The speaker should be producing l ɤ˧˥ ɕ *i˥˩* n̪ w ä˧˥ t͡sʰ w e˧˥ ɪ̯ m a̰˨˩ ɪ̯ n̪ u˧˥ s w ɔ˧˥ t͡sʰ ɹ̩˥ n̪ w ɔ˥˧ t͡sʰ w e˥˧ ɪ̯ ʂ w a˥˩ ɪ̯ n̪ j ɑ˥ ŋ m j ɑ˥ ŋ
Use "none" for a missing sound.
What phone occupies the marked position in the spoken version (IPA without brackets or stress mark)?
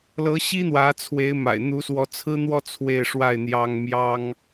i˥